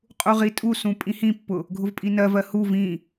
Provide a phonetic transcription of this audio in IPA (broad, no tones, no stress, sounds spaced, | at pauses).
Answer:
qʼ u ʁ i tʼ u s ũ pʼ ĩ h ĩ pː ʊ | ɡʱ ʊ v pʼ i n ɜ v ɜ h u v ĩ